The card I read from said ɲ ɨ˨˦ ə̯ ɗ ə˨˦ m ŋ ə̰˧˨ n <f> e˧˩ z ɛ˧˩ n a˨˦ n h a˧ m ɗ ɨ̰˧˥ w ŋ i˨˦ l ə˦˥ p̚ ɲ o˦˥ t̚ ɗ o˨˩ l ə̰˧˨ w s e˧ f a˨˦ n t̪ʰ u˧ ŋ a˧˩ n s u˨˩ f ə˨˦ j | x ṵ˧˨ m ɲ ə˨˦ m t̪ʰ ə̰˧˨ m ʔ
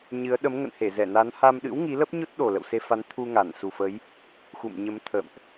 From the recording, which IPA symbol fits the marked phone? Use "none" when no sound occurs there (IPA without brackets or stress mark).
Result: h